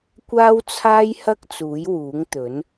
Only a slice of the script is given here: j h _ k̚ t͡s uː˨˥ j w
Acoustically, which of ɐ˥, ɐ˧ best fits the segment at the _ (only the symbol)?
ɐ˥